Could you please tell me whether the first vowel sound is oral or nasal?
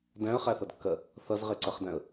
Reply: nasal